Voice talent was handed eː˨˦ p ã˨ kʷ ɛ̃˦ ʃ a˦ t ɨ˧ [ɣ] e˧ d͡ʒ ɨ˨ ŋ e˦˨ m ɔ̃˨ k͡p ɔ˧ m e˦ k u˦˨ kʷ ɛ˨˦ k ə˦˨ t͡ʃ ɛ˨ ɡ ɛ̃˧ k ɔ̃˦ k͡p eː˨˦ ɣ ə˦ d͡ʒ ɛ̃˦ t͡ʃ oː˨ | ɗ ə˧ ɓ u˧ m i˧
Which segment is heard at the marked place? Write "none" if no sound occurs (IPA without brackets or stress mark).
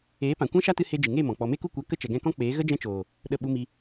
h